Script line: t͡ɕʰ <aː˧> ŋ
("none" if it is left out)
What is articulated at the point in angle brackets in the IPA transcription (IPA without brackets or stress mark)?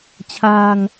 aː˧